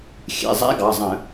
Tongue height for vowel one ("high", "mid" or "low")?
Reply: mid